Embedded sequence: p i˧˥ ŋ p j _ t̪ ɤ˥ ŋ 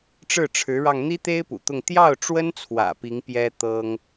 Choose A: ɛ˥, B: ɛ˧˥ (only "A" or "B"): A